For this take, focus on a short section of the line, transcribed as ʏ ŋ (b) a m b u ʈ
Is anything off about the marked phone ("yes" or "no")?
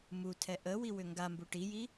yes